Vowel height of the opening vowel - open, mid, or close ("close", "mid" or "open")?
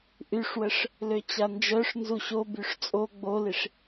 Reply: close